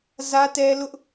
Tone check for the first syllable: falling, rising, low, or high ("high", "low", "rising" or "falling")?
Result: high